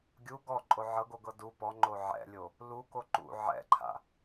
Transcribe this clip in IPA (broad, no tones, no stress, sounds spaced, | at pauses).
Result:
ɡʲ u ɡ ɔ ǃʼ o ʕ ɤ ɡ o ɡ ɤ d u p ɔ ŋ͡ǃ o ʕ ɛ̰ lʲ o | l u k o ǃ ṵ ʕ ɛ̰ ǃʰ a̰